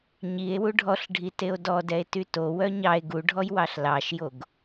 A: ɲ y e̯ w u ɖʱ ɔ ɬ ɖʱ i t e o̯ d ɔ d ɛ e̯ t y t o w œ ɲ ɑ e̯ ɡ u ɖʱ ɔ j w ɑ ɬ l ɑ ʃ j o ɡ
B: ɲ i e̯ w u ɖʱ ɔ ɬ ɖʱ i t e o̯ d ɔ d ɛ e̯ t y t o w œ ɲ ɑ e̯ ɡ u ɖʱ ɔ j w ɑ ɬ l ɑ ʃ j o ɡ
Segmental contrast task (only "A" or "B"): B